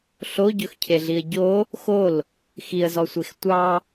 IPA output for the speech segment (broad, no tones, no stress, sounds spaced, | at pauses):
ɬ o ɟ ɵ x cʰ e ɮ i ə̯ ɟ o | x o l | x i ə̯ z ɔ sʷ e x tʷ ɑ